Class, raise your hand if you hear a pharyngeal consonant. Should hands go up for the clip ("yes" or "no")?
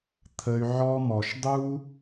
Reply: yes